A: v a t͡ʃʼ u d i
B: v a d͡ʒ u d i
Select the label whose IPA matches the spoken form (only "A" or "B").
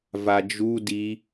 B